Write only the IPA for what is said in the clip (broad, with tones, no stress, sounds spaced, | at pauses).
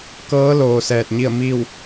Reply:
k ɤː˧˥ l oː˩ s ɛː˧˩ t̚ ɲ i˥˨ ə̯ m iː˥˨ w